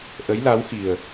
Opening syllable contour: rising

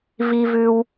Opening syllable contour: high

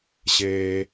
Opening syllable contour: high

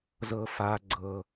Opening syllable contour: low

